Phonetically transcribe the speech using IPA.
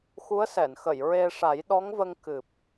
x u˧˥ ə̯ s ɛ˨˩˨ n x ə˨˩˨ j ɹ e˧ ʂ a˨˩˦ j ɗ ɔ˧˥ ŋ v ə˧ ŋ k ɨ˨˩ p̚

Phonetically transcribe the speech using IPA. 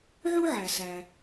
ʕ u˥ ʕ æ˩ s æ˩

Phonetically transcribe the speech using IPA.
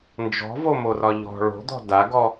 n d͡ʒ ɔ̤ v o m o r ɒ ʎ ɔ̤ ɭ o̤ d̪ ɔ̤ d a ɡ ɔ

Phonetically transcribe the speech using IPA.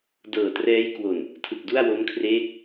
d ɤː˨˩ t r ɛː˦˥ j k w o˨˩ n | tʰ ɯ˨˩ k̚ d u˥˩ a̯ w o˦˥ m kʰ r eː˦˥ k̚

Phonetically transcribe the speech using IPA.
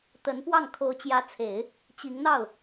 t̪ ə˧˥ n p w ɑ˥˩ ŋ kʰ o˧˥ ʊ̯ t͡ɕ j ä˧˥ t͡sʰ e˨˩˦ ɪ̯ | t͡ɕ i˧˥ ŋ n̪ ɑ˥˩ ʊ̯

